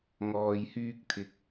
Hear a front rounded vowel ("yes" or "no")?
yes